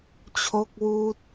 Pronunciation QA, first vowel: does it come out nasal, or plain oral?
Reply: oral